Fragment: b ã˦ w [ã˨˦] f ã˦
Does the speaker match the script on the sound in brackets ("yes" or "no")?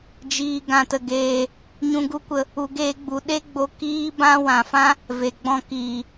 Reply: no